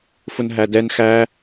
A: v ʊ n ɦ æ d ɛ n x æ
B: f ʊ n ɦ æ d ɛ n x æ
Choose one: B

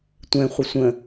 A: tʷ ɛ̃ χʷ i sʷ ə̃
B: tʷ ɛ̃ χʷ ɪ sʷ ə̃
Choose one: B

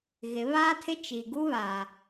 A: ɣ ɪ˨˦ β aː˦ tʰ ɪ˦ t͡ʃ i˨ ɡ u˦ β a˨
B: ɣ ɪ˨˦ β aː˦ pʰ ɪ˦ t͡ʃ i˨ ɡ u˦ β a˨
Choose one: A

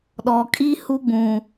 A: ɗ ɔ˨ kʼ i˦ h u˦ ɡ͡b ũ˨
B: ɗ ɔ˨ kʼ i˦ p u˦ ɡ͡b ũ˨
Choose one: A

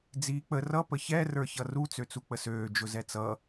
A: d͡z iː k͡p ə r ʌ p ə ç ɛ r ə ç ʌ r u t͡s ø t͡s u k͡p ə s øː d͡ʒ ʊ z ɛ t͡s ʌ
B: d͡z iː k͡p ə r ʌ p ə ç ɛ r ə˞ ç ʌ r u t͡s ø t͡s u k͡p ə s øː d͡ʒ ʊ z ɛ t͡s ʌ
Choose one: B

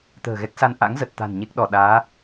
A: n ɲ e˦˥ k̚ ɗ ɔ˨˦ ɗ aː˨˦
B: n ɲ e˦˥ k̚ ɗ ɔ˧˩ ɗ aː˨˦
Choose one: B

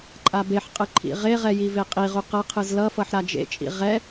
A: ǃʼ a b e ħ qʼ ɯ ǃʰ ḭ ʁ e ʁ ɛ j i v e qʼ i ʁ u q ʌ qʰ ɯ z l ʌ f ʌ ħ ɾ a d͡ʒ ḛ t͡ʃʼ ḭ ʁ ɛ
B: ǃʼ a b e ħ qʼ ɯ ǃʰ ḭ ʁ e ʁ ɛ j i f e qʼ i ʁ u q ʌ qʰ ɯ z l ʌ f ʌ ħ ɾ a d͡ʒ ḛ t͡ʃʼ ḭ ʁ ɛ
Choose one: A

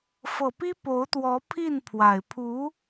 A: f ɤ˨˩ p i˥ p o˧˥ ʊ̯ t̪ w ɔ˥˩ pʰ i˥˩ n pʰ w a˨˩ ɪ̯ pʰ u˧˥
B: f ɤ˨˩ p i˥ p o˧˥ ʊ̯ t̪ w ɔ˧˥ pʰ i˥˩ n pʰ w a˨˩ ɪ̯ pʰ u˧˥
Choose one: B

